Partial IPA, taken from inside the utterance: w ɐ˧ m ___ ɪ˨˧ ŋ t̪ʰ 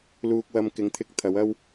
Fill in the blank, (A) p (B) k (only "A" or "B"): B